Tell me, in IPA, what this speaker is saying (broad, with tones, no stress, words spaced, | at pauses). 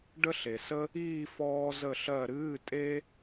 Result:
ɖə˥ɬe˨sə˥ | iː˥˧ fɔː˥zə˥˧ɬɜ˥˧ ɾɨː˧˥˧tʼe˥